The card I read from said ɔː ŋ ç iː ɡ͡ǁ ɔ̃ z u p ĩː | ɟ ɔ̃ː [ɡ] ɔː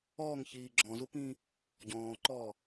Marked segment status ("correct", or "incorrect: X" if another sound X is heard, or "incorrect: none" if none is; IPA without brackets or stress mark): incorrect: ǃ